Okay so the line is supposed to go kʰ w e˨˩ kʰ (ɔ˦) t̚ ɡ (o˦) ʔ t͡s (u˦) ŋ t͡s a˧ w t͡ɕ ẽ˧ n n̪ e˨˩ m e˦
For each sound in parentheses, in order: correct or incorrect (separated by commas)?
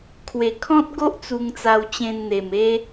incorrect, correct, incorrect